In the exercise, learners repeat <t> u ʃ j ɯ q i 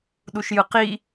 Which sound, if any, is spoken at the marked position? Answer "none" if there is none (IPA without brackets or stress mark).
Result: ɗ